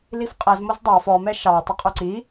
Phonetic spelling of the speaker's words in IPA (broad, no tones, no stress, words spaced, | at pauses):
lifqʼɛz mozdˤɑ fɔ mɛʃɑ tˤəqʼɵǀi